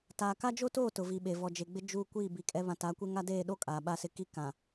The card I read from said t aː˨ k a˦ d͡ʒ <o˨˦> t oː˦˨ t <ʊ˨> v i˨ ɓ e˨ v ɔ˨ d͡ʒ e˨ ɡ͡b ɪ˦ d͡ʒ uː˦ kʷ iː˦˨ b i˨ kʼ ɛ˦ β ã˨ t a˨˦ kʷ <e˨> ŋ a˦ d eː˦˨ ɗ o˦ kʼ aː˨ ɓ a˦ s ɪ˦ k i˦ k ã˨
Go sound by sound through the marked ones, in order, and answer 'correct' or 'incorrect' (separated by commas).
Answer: incorrect, correct, incorrect